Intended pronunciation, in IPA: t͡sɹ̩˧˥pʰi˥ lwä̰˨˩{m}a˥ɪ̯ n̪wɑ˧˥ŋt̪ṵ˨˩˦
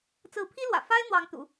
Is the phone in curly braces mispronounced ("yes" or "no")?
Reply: yes